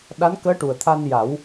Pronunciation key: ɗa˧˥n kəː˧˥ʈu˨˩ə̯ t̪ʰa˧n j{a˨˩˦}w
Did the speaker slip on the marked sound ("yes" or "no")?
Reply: no